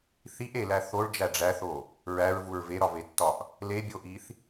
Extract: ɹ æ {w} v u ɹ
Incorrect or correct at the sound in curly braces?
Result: incorrect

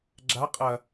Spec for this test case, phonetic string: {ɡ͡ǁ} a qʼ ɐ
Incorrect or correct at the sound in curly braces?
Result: correct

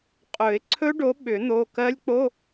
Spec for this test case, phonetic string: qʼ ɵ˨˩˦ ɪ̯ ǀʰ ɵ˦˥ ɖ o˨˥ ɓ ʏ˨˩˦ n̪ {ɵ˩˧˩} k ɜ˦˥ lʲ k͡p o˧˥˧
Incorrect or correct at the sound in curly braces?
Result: incorrect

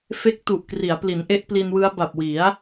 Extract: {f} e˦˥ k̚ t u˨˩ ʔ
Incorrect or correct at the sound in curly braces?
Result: correct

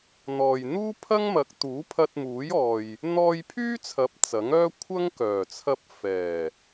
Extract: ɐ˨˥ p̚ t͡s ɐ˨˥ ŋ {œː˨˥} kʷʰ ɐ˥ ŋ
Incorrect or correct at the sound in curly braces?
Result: incorrect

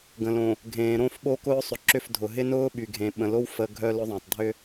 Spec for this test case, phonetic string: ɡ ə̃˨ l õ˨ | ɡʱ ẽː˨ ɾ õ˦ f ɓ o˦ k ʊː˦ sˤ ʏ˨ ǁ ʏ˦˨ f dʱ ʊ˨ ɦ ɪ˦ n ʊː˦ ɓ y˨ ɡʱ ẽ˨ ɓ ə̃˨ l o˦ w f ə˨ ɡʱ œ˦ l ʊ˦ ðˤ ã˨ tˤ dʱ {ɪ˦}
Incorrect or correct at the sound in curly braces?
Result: incorrect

